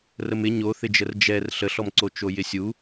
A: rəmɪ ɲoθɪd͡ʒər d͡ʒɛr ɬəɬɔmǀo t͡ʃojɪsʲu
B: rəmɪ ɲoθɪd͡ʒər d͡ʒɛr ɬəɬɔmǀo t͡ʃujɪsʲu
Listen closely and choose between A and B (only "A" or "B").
A